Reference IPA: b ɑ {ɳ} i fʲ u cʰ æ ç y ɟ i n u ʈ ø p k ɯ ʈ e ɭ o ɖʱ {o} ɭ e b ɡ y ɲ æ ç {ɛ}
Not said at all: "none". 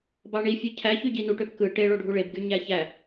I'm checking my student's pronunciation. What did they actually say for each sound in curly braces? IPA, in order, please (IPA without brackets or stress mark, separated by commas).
ɳ, u, æ